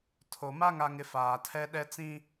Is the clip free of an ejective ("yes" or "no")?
yes